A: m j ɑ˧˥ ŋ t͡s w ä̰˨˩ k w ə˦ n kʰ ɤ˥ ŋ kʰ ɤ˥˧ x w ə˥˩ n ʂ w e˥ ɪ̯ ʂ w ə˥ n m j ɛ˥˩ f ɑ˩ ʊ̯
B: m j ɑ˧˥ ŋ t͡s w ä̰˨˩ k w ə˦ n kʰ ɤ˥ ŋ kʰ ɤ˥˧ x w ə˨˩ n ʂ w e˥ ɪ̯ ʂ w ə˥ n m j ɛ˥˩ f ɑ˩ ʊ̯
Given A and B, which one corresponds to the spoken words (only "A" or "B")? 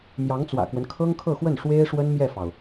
A